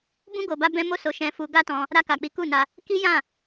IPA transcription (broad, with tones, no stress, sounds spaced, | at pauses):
b ũ˦ ɡ o˧ b a˦ b ɛ̃˦ m o˦ s o˧ ʃ ɛ̃˧ f u˧ ɡ a˦ t ɔ̃˧ | ɾ a˧ k a˨ k͡p i˨˦ k u˦˨ n a˧ | k i˦ j ã˦˨